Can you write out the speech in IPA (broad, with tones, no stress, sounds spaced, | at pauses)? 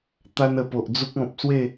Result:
t̪ a˧ n ə˨˩ p o˨ ʔ d͡z u˦ k̚ ɔ̃˨ p̚ s w e˥˧